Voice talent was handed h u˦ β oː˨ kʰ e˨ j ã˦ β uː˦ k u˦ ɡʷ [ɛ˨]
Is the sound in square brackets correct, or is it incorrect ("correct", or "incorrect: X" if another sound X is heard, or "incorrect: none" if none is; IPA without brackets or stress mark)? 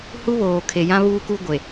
incorrect: e˨